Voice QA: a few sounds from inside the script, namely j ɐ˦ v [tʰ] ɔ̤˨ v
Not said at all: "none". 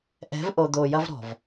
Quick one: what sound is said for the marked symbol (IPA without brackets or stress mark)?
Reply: ɾ